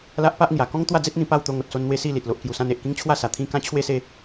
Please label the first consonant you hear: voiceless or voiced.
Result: voiced